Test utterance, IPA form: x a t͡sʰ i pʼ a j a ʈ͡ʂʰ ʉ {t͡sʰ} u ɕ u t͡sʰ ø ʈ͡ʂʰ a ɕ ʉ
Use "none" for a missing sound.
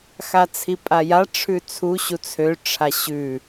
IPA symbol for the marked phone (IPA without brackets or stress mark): t͡sʰ